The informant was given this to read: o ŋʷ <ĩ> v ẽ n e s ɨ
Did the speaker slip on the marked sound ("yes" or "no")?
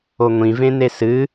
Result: no